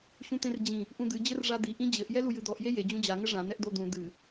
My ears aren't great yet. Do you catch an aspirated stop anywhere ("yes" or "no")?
no